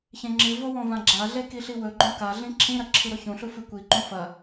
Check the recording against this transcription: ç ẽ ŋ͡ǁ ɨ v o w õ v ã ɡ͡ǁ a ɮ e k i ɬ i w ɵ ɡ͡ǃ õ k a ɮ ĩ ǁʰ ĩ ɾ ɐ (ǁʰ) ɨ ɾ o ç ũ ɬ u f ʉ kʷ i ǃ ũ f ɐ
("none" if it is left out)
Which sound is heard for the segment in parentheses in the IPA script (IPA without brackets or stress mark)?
ǁʰ